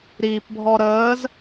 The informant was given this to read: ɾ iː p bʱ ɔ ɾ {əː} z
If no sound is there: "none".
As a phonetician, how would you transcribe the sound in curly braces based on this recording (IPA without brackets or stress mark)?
əː